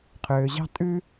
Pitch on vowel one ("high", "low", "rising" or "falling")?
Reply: low